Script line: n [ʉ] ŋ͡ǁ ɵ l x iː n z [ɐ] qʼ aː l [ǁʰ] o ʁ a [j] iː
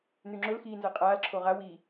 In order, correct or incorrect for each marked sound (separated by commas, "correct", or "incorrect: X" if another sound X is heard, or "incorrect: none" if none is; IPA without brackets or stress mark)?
correct, correct, correct, incorrect: w